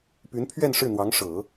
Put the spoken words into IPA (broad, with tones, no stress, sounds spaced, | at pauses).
p y˧˥ n pʰ ɥ ɛ˥˧ n ʂ ɻ̩˥˩ n̪ w ɑ˧˥ ŋ ʂ ɤ˨˩˦